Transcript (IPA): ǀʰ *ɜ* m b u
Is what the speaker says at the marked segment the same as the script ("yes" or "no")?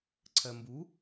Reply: yes